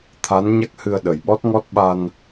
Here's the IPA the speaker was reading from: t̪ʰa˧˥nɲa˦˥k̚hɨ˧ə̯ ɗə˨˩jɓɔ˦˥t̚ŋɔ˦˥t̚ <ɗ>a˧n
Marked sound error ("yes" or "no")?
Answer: yes